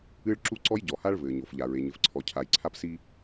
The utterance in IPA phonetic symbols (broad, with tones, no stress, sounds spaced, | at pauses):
ɨ˦ ɭ ǁ u˦ ǀ ɔ˦ j ɟ ɔ˨ h a˦ ɭ v ɘː˨ ɲ o˨ f ʎ a˨ ɹ e˨ ɲ ɘ˨ f ǀʰ ɔ˨ cʰ a˨ j ǀʰ a˦ p s i˦